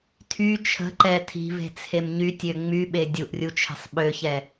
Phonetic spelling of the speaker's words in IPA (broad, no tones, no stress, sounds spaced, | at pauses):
tʰ y t͡ʃʰ ə̤ ǃ ɛ tʰ i̤ v e̤ t͡sʰ e m ɲ y tʲ ø ŋ͡m y ɓ e dʲ u ʔ rʲ u t͡ʃʰ e̤ sˤ ɓ ø ç ɛ